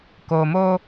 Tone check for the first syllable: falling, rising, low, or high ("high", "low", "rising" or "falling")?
low